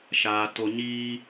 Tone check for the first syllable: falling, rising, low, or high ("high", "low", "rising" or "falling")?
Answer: low